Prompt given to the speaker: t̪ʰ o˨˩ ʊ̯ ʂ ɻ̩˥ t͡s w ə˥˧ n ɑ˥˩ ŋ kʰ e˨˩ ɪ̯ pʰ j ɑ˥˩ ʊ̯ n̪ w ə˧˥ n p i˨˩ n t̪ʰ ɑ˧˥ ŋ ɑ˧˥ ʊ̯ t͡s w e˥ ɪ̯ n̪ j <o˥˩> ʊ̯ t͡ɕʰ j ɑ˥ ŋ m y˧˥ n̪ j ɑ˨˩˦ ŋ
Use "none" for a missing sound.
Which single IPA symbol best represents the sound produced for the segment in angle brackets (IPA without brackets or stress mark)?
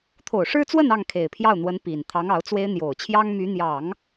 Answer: o˨˩